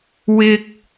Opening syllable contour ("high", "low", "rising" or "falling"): high